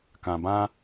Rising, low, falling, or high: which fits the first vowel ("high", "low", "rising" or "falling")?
low